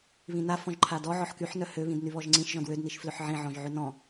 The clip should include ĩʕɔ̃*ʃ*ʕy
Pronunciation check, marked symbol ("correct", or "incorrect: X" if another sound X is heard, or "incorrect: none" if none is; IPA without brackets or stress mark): incorrect: ʒ